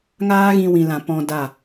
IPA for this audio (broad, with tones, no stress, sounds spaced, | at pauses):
ŋ aː˦ ɣ ĩ˧ w ĩ˨ l ã˨ p ɔ̃˧ d a˦˨